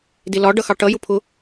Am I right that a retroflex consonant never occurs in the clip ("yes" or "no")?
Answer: no